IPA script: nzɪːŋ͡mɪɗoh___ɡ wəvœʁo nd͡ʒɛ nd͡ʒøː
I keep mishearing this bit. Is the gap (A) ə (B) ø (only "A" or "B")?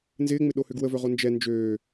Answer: B